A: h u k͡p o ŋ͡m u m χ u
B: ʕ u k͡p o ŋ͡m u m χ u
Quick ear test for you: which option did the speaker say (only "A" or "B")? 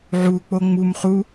B